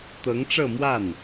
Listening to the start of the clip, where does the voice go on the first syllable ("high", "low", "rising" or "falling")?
rising